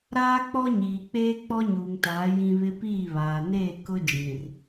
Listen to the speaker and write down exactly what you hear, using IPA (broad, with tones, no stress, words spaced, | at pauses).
ɾaː˦k͡pɔ˦ɲiː˨k͡peː˦ k͡pɔ˦ɲuː˨ŋtaː˨˦ jĩ˦βɪ˦ piː˦˨βaː˨neː˦˨ kʊ˦d͡ʒĩ˨r